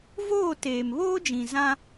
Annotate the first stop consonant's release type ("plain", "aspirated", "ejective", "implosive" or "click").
plain